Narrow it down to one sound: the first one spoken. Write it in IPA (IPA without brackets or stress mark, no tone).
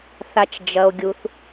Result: θ